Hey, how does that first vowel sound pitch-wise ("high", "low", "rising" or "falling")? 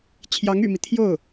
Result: rising